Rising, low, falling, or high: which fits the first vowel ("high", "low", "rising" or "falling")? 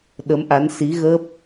rising